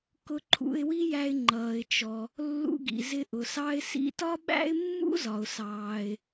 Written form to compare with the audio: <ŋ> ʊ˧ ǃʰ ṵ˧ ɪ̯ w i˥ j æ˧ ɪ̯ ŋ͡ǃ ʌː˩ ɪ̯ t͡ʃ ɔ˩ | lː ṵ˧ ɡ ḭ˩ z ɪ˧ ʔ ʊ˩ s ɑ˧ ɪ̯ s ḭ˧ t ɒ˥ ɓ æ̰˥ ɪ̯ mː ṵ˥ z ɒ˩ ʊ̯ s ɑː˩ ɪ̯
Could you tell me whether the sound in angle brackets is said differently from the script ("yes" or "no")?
yes